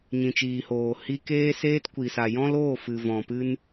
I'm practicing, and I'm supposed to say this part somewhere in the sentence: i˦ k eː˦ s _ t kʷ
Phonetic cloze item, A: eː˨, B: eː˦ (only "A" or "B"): B